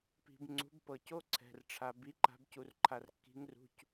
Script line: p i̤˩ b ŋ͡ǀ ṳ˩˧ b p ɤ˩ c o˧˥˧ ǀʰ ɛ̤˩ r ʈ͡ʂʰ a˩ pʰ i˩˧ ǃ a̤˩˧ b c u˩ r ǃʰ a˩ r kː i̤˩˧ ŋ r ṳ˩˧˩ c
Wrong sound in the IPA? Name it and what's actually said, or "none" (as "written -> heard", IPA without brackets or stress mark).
pʰ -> b